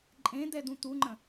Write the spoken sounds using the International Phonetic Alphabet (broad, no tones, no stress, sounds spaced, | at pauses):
ǃʼ ẽ d̪ ɛ d̪ ũ t̪ u ŋ͡ǃ ə̃